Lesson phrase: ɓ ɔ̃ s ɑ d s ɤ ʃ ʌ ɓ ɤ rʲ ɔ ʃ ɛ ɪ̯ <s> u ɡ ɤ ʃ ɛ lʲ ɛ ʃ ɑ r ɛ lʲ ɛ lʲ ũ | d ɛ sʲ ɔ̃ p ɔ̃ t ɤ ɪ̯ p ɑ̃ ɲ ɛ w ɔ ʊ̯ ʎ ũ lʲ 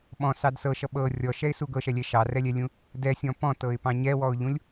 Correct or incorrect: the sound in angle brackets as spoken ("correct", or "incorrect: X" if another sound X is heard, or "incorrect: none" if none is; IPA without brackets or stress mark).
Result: correct